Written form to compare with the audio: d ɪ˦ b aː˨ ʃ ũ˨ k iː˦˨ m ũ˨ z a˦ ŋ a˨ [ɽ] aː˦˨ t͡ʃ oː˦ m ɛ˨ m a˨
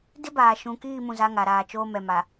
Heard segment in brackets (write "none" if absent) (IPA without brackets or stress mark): ɾ